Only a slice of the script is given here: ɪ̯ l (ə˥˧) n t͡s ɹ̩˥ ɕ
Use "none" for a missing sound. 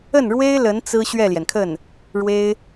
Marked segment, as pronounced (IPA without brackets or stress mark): ə˧˥